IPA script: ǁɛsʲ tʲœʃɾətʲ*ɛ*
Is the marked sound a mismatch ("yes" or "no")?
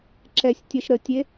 yes